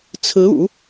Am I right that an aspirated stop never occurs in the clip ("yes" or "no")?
no